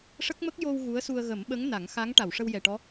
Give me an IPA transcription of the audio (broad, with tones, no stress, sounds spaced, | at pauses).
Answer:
ʂ ə˦˥ k̚ m ə˦˥ k̚ j o˧ w ɣ u˧˥ ə̯ s u˧ ə̯ ɣ ə˨˩˦ m ɓ ə˧˥ ŋ n a˨˩˦ ŋ x a˧˥ ŋ ʈ a˨˩˨ w ʂ ə˧ w j ɛ˨˩ ʈ ɔ˧˥